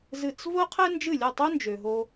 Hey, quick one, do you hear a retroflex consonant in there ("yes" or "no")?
no